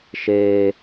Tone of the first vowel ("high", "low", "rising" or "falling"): high